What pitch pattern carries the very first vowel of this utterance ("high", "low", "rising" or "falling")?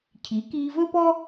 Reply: rising